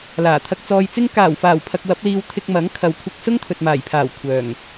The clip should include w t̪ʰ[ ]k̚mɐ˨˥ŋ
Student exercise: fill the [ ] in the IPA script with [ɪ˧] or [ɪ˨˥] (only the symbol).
ɪ˧